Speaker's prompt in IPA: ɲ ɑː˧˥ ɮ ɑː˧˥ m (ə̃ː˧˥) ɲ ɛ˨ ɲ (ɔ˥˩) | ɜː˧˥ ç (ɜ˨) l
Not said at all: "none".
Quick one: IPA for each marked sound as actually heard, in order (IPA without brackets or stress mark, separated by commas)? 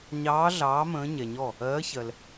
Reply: ə̃ː˧˥, ɔ˥˩, ɜ˨